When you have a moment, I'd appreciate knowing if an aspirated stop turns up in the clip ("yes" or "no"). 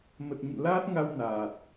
no